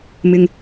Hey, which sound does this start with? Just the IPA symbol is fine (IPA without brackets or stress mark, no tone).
m